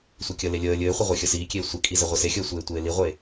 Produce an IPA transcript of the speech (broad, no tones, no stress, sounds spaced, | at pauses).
sʷ i kʲ ə l e lʲ əː lʲ ɘː χʷ ə ʁʷ e xʲ ə s iː kʲ eː sʷ e kʼ i z ɘ ʁʷ i s e xʲ əː sʷ eː tʷ eː l i ʁʷ eː